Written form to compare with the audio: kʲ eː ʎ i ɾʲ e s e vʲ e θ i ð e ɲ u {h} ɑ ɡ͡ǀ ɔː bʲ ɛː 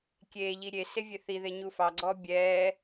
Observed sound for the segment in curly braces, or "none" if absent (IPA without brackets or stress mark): f